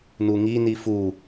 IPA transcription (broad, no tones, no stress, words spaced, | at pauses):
nuŋi nifu